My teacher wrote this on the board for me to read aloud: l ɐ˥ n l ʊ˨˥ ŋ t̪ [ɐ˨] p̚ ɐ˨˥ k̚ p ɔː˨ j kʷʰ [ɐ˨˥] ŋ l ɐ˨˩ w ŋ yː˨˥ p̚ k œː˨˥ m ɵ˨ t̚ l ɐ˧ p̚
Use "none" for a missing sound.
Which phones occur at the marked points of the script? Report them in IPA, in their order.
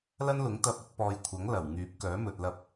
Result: ɐ˧, ɐ˨˥

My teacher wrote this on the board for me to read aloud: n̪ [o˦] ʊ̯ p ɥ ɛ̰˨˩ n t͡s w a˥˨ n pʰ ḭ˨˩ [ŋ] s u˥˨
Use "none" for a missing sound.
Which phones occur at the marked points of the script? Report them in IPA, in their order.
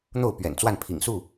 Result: o˥˨, ŋ

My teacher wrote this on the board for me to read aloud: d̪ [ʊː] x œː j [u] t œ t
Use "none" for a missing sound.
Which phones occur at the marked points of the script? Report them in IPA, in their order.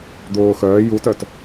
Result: ʊː, u

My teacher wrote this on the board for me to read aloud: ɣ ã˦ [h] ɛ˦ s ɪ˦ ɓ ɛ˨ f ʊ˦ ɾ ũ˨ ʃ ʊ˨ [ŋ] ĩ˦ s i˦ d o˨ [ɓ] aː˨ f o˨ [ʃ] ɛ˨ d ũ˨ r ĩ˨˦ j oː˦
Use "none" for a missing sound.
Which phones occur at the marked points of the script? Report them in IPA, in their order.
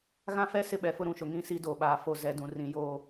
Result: f, ŋ, ɓ, z

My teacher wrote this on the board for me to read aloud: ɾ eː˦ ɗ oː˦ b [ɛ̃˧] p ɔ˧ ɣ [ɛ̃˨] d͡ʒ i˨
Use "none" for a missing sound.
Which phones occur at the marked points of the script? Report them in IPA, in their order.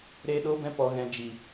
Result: ɛ̃˦, ɛ̃˧

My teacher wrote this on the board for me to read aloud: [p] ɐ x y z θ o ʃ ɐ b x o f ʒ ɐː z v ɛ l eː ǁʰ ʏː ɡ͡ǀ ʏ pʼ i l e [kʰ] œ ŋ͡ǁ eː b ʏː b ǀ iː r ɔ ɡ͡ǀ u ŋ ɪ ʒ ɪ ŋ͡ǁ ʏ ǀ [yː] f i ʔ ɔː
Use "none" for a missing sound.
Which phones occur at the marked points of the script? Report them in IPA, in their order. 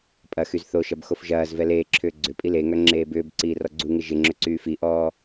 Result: pʼ, ŋ, yː

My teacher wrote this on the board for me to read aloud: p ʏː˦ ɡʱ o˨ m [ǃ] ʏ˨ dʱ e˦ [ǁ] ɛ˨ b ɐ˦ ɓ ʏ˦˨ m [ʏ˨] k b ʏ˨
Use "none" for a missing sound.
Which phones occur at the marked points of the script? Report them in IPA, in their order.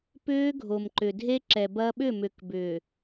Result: ǃ, ǁ, ʏ˨

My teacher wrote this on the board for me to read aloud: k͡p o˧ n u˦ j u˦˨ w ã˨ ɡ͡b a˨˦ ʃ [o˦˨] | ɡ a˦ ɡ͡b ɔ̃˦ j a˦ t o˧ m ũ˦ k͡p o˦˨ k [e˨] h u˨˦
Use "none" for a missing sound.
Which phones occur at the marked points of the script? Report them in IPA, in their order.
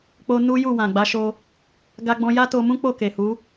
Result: o˧, e˨

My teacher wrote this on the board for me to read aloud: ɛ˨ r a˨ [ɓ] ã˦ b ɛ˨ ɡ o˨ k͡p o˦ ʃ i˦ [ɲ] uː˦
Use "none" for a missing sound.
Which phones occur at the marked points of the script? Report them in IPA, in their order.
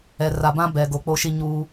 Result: b, ɲ

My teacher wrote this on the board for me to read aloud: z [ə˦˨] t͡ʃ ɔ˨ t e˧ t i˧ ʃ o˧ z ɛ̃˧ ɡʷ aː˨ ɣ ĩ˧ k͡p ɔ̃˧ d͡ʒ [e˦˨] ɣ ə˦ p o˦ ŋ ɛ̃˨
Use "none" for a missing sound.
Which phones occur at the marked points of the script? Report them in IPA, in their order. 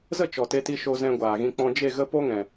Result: ə˦˨, e˦˨

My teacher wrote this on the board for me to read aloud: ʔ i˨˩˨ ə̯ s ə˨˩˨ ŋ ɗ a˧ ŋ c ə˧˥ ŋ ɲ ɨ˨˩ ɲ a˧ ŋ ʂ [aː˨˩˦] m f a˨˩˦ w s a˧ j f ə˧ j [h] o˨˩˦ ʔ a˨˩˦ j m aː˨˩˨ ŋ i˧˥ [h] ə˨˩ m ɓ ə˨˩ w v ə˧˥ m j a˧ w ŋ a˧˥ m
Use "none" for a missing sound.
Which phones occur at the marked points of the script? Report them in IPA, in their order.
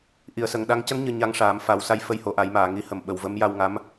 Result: aː˨˩˦, h, h

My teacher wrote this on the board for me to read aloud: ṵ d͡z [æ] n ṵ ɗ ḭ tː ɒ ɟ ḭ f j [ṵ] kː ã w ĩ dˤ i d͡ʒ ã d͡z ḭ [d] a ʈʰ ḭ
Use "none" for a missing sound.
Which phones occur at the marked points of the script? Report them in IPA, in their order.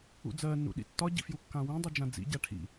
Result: ɜ, u, ɟ

